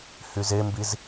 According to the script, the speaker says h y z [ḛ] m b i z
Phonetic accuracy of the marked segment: incorrect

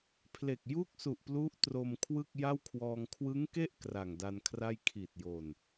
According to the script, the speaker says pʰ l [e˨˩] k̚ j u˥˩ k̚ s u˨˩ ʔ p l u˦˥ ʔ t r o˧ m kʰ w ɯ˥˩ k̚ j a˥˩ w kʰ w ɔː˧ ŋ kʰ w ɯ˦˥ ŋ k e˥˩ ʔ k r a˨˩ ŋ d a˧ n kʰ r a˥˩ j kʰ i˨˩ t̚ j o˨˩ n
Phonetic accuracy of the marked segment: correct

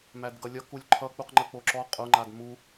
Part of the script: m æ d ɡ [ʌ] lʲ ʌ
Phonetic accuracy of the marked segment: correct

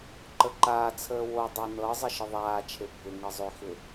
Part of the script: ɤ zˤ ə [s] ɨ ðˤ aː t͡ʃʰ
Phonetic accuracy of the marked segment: incorrect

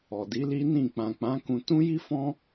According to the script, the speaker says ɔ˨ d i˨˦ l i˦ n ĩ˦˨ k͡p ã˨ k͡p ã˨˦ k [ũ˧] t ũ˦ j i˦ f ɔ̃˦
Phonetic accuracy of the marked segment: correct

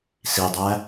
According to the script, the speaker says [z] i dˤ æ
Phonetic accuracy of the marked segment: incorrect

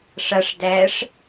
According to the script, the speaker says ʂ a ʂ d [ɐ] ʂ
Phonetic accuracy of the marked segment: incorrect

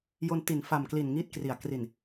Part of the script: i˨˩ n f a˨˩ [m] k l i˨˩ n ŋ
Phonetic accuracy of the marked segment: correct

